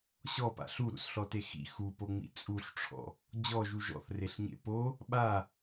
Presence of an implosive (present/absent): present